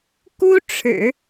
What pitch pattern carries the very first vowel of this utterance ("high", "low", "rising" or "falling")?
high